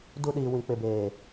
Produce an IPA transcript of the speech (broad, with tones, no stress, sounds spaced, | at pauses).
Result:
d u˦ ɗ iː˨ w ĩ˨ k͡p ɪ˨ b eː˨